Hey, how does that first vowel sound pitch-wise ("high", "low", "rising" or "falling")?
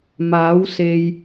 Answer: rising